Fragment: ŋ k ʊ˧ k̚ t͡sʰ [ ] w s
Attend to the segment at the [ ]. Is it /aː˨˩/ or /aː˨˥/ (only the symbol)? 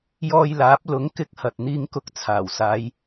aː˨˩